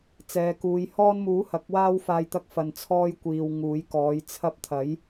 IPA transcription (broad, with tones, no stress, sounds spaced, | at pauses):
t͡s ɛː˨˧ k uː˨˧ j h ɔː˧ n m uː˨˥ h ɐ˨˥ k̚ w aː˥ w f aː˧ j t̪ ɐ˧ k̚ f ɐ˨ n t͡sʰ ɔː˧ j kʷ iː˨ w ŋ uː˨˥ j k ɔː˨˥ j t͡sʰ ɐ˧ p̚ t̪ʰ ɐ˨˥ j